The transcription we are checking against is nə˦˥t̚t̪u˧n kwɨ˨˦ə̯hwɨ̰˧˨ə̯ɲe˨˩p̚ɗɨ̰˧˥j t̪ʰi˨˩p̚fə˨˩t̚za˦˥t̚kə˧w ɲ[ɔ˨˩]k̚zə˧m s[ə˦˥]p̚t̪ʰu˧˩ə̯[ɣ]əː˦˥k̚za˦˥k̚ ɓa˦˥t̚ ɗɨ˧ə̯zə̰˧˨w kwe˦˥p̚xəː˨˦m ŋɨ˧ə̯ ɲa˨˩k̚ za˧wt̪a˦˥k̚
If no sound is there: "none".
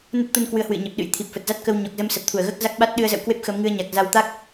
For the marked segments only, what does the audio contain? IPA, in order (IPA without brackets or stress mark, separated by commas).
ɔ˨˩, ə˨˩, ɣ